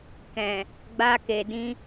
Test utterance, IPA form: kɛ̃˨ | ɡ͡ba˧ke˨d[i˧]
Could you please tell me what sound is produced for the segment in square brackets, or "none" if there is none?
ĩ˧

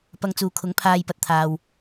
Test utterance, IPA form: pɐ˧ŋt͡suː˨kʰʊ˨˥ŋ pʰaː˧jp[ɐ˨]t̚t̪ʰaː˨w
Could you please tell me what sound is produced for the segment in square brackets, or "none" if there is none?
ɐ˨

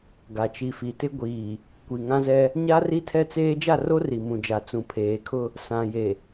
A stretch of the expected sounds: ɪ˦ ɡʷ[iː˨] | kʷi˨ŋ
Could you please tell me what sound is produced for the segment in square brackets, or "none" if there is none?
iː˨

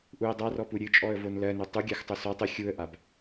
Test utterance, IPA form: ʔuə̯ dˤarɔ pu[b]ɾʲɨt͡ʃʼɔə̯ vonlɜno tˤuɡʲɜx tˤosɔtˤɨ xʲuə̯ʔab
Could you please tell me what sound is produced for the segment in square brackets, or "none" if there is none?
none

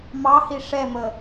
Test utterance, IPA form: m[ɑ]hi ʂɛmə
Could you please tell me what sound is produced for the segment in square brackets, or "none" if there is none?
ɑ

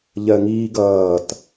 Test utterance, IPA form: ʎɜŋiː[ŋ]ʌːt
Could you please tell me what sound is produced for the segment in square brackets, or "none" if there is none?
ɡ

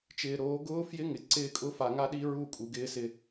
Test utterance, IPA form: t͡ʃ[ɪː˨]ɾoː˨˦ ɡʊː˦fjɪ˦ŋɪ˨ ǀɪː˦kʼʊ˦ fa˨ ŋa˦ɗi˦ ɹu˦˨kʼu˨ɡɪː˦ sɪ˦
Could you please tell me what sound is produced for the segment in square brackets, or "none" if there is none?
ɪː˨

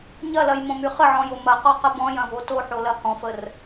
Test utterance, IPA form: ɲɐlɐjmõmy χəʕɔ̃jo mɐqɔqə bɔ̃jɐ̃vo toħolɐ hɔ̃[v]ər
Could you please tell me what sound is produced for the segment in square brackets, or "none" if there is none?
f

